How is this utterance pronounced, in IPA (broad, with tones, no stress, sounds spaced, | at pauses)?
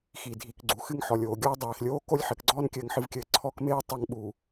x i˨ dʱ i˨ k ɡ͡ǀ u˨ x ɨ˦ ŋ ħ ɔ˨ lʲ oː˨ ɡʲ ɔː˦ dˤ eː˨ x lʲ oː˦ k o˦ lʲ ħ ɘ˨ k ɡ͡ǀ ɔː˦ n kʲ ɘː˦ ŋ ħ ɨ˦ v kʲ ɘː˦ ǀʰ ɔ˦ k m eː˦ tˤ ɐ˦ ŋ ɓ u˨